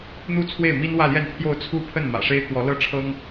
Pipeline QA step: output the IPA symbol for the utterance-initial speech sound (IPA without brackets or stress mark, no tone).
n̪